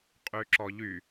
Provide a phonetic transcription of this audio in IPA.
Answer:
qʼyǁɔʎy

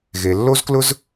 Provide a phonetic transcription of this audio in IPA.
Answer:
ɣe˨lːo˥zklʊ˥z

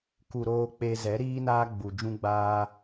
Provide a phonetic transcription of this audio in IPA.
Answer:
ku˨ɾoː˧ k͡pe˧ zɛ˨˦ɾiː˦naː˦ ɡ͡bu˨ d͡ʒũ˦ɡ͡baː˦

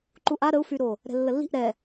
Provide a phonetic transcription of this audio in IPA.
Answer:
ǃuʔa ɾəu̯fyɾo | ɾɛ̤lːəlːi̤ʔ ɾɛ

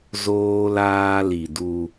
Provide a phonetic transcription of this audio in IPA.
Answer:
zoː˦laː˦li˨du˦

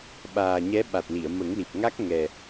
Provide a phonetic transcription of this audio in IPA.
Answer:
ɓaː˨˩ɲɛ˧˥ ɓa˨˩t̚li˨˩˨ə̯ mə˨˩˦ŋli˨˩p̚ ŋa˦˥k̚ŋɛ˨˩

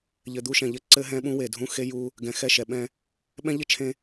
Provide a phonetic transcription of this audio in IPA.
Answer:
ʎɘ˨d̪u˦ʃɛ̃˨ʎɘ˦ ǀɘ˦ ɦɛ̃˦ɓũ˦we˨dʱũ˦ xe˦ju˦ | ɡɛ̃˨˦xɛ˦˨ʃɛ˨ ɓɛ̃˦ | ɓɛ̃˦ʎɘ˦ t͡ʃʰẽ˦

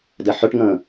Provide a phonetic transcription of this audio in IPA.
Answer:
dɛħœʈŋə̃ː

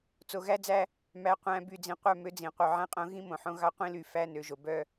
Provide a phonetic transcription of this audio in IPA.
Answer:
t͡so˨ɣæ˦d͡zæ˦ | mæ˨ qʷæ̃˨ by˨d͡zĩ˨qʷœ˦˨ mø˦d͡zĩ˨ qʷœ˨ʕæ̃˦qʼõ˦ ɣĩ˦ mõ˨ħõ˦ ɣɑ˦ qʷĩ˦ly˨ fæ˦ nø˨ʒo˨bœ˦

